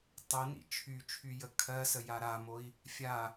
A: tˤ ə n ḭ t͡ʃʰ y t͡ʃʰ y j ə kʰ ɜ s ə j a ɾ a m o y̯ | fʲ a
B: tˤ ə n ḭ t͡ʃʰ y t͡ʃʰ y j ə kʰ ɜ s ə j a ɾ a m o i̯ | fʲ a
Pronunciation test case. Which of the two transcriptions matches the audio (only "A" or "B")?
B